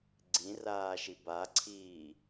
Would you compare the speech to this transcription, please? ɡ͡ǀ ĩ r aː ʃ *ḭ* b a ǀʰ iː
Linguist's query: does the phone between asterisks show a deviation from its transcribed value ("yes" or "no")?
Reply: yes